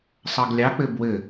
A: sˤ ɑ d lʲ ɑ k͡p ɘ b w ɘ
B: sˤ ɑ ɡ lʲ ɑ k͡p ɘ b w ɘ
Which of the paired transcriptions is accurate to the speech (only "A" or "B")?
B